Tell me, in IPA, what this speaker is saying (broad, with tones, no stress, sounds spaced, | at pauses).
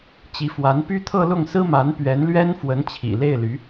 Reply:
t͡ɕ i˧˥ f w a˧˥ n p y˥ t̪ʰ ɤ˥˧ l ʊ˥˩ ŋ s ɹ̩˥ m a˧˥ n p ɥ ɛ˧˥ n l ɥ ɛ˥ n f w ə˧˥ n t͡ɕʰ ḭ˨˩ l e˥˩ ɪ̯ l y˧˥